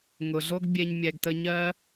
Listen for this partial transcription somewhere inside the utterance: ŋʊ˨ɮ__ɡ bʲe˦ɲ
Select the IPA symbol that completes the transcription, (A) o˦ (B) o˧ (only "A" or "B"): A